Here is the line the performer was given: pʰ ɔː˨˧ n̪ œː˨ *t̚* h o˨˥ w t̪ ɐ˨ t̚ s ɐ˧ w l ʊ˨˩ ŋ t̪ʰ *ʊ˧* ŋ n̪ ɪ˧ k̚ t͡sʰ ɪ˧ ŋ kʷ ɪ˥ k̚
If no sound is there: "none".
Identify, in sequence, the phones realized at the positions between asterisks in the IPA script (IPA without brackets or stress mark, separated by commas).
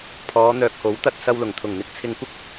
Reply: k̚, ʊ˨˩